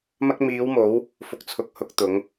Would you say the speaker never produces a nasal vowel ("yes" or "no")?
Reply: yes